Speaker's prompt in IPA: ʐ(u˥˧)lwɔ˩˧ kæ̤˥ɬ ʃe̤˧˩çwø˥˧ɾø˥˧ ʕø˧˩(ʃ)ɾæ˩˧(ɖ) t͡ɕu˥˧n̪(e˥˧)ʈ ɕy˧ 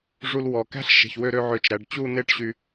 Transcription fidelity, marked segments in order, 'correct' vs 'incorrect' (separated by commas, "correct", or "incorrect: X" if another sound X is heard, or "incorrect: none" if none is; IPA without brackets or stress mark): incorrect: u˧, incorrect: t͡ʃ, correct, correct